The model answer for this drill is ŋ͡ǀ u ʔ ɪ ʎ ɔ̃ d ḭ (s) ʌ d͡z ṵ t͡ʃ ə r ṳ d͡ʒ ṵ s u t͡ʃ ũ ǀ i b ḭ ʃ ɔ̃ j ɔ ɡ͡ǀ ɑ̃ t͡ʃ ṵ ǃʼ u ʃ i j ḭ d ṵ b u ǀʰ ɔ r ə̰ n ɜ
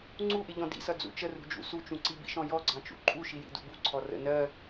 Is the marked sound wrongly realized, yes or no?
no